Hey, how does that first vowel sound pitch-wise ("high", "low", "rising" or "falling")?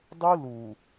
high